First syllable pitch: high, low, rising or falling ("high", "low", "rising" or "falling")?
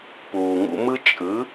low